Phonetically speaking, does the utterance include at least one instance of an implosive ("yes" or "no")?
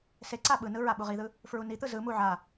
yes